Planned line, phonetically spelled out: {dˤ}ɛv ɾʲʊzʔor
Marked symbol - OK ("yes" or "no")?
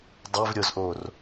yes